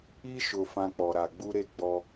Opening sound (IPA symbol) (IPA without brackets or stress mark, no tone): i